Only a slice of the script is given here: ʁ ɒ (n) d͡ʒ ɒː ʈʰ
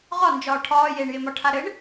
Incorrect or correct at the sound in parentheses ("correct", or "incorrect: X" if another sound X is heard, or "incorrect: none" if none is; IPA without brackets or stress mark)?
correct